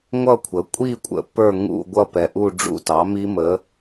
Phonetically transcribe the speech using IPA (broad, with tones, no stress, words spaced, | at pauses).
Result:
ŋʷʌ˥˧kʷʰə˩˥kʷʼi˥˧kʷʼə̰˨ pə˞˥˧ŋṵ˥˧ɡʷʌ˥˧ pɛ˨ʔu˥˧ɖ͡ʐṵ˥˧tɑ˩˥ mi˦˥mə˩˥